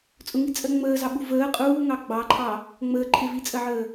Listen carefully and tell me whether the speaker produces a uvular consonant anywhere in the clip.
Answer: yes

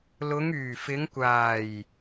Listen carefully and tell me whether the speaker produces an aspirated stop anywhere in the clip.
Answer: no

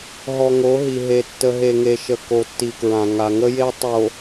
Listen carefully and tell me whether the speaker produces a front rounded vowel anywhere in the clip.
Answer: no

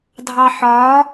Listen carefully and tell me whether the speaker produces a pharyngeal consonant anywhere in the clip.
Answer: yes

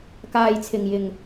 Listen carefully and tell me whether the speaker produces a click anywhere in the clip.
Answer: no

